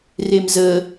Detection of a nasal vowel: absent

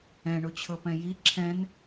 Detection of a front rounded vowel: absent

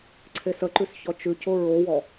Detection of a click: present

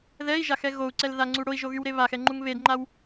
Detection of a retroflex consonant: present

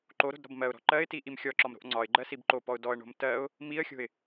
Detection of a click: present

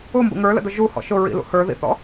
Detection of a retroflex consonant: absent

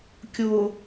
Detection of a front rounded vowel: absent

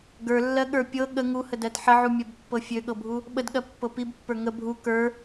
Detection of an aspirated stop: absent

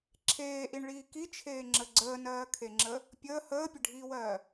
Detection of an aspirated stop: present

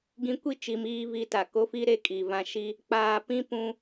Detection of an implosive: absent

